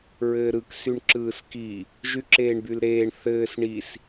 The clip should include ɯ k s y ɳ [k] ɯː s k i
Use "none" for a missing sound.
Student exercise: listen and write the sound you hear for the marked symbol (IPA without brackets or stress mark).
ǁ